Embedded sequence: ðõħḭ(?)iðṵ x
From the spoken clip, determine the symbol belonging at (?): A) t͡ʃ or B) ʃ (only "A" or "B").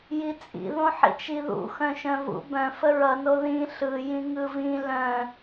A